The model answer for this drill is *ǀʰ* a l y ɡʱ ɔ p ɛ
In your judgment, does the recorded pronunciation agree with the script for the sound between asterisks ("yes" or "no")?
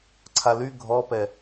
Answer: yes